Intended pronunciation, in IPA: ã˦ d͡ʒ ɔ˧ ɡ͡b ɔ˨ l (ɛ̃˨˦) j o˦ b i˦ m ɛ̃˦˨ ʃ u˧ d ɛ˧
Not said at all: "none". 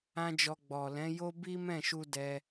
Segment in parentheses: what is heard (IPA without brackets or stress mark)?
ɛ̃˨˦